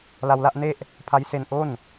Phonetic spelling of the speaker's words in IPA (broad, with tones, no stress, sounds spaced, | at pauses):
l a˧ w l a˥˩ ʔ n e˥˩ ʔ | pʰ a˦˥ j s e˧ n ʔ o˥˩ n